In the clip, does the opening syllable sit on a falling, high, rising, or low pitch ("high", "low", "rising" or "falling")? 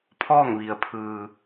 falling